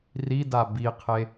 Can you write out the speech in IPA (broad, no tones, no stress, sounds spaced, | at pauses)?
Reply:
r i d a b i qʰ e